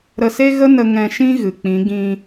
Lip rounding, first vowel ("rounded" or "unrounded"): unrounded